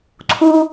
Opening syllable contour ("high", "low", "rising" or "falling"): high